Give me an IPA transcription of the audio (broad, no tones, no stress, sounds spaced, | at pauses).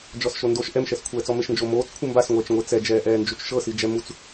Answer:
d͡ʒ ɔ s ʃ o n d o ʃ ʔ ɛ m ʃ ɛ s kʷʰ ɛː t͡s ɔ m e ʃ n d͡ʒ o m oː t͡s kʷʰ ɯ m b a s ŋʷ ɛː t͡ʃ ŋʷ e t͡s ɛ d͡ʒ ɛː ʔ ɛː n d͡ʒ u t͡ʃ ʃ ɤ s i d͡ʒ ɛ m u t͡s